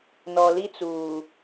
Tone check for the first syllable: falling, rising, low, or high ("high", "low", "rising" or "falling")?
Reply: low